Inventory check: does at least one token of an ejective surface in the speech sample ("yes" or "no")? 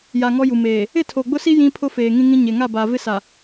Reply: no